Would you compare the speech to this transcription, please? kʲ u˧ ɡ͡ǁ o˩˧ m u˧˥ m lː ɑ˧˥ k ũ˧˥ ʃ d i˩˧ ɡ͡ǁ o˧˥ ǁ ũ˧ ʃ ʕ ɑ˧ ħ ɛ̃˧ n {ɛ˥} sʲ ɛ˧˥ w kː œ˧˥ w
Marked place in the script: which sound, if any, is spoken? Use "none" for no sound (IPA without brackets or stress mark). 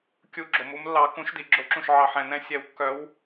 ɛ̃˥